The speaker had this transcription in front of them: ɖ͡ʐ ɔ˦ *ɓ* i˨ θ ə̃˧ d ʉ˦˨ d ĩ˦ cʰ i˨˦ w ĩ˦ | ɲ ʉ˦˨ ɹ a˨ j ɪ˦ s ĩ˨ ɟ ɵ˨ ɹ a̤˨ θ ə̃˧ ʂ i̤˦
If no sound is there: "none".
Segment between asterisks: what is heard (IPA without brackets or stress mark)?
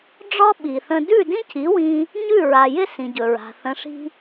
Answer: ɓ